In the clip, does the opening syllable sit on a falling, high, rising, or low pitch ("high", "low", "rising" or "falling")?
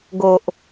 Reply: low